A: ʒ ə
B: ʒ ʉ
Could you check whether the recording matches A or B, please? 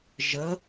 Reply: A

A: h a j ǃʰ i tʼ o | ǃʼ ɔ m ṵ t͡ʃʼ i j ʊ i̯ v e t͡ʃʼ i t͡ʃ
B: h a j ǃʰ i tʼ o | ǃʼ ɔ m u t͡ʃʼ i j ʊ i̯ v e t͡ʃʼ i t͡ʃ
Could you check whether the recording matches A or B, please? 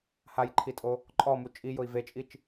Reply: B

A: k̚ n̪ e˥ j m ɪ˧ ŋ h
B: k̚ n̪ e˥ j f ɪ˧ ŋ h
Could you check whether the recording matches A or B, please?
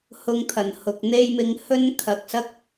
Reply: A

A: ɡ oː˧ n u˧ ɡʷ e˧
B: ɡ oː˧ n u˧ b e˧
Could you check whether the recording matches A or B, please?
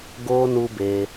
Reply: B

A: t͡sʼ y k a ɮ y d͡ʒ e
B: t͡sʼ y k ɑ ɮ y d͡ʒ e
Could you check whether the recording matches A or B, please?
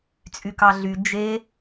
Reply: B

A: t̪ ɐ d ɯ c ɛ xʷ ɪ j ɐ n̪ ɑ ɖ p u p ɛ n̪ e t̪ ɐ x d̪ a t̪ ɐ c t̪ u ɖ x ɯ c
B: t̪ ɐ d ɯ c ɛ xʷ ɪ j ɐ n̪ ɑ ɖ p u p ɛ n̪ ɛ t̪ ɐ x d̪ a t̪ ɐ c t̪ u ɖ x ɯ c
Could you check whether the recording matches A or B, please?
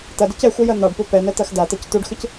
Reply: B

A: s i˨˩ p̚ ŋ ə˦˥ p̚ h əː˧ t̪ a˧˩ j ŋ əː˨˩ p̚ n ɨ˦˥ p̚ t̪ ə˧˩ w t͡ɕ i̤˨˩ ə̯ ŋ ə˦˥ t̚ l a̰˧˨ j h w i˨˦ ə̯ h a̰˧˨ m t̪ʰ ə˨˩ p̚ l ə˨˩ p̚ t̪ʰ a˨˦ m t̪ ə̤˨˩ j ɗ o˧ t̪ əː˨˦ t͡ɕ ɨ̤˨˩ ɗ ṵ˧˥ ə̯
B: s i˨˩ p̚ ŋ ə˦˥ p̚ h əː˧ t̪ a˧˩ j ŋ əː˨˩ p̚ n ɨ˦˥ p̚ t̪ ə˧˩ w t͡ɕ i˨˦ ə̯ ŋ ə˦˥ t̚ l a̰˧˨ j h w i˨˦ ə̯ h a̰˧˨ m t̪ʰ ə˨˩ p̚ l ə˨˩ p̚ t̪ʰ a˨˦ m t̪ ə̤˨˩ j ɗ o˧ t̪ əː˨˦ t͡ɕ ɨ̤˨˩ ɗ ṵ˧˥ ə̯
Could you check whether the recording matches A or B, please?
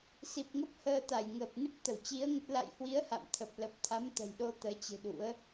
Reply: B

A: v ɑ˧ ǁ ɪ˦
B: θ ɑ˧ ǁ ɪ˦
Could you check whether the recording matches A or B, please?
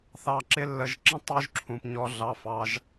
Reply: B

